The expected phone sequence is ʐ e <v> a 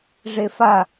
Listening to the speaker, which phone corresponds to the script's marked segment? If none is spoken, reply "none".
f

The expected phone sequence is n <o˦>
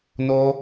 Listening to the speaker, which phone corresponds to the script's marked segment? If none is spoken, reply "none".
o˦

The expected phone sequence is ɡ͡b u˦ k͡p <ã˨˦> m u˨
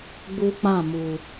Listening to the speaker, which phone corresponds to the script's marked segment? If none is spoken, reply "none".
ã˦˨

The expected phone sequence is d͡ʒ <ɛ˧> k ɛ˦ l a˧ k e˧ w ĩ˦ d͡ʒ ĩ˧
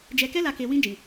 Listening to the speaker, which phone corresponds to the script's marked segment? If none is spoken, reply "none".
ɛ˧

